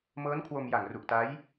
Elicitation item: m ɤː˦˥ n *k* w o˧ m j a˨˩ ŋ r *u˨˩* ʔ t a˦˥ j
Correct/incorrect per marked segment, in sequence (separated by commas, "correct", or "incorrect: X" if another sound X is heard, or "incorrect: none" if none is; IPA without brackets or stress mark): incorrect: kʰ, correct